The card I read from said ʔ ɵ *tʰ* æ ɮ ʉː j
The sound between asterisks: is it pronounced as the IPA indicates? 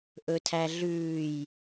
yes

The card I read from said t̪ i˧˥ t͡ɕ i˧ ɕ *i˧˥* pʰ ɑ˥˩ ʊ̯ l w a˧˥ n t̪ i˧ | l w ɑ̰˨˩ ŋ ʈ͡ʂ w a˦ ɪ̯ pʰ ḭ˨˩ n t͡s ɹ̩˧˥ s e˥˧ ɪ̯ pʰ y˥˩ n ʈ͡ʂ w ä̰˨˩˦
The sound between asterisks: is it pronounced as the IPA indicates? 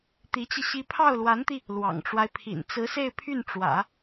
yes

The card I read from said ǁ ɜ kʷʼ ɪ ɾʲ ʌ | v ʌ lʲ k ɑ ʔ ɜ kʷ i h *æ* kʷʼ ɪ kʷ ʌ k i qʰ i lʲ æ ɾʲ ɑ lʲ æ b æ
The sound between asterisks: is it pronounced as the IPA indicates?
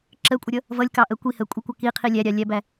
no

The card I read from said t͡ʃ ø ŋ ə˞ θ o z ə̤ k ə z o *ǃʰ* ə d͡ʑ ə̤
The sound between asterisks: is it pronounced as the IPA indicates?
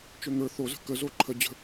yes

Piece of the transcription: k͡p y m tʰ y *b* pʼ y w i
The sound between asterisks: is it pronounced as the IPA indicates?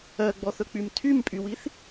no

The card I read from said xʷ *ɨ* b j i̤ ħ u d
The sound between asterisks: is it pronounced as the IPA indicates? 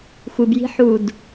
yes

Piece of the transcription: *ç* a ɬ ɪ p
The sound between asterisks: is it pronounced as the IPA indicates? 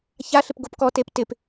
yes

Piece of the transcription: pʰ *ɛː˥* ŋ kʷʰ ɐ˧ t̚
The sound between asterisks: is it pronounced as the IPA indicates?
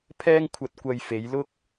yes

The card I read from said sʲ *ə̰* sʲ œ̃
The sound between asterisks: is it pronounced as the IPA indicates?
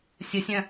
no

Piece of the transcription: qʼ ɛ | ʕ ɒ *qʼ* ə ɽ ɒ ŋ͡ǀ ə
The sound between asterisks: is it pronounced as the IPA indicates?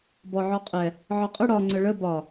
yes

